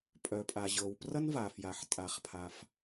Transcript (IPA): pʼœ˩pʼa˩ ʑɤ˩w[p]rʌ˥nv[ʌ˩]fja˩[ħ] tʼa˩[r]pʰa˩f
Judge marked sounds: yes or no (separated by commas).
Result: yes, no, yes, no